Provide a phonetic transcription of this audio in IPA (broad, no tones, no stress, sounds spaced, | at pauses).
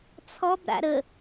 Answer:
t͡sʰ ɔ b ɾ a̰ ɾ ə